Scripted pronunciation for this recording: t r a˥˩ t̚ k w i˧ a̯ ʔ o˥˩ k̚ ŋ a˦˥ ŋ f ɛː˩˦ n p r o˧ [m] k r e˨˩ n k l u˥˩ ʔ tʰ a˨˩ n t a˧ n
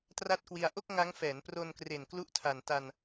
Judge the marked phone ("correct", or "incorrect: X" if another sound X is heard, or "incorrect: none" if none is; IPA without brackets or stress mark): incorrect: n